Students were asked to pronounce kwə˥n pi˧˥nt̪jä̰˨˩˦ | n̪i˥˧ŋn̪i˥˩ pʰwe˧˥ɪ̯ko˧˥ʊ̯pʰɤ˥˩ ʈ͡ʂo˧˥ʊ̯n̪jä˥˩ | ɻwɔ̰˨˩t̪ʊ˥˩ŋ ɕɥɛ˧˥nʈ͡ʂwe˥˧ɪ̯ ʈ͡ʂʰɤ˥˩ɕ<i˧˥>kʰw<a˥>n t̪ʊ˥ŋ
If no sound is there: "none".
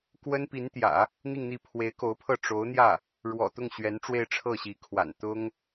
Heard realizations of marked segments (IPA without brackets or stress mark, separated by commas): i˧˥, a̰˨˩